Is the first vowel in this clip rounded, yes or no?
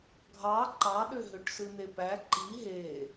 no